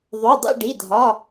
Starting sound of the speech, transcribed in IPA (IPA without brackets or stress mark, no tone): ðˤ